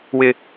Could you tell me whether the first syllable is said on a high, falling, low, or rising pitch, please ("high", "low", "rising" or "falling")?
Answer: high